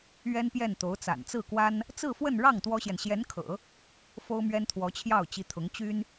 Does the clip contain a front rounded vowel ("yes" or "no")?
yes